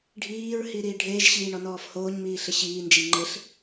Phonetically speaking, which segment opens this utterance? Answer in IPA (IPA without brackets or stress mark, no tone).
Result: ɖʱ